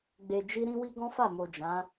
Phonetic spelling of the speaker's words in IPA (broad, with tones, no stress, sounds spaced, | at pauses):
ɡ͡b e˧ d͡ʒ i˦ ɾ ĩ˦ w i˦ ɡ ɔ̃˦ f a˦˨ m o˨ d͡ʒ ã˨˦